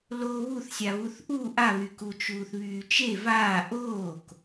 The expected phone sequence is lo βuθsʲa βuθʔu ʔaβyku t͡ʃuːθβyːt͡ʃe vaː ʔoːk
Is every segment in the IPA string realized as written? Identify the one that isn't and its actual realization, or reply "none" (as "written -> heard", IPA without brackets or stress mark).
none